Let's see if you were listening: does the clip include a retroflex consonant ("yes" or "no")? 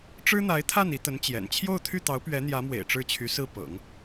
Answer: yes